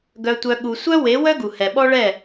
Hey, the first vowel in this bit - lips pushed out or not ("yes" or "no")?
yes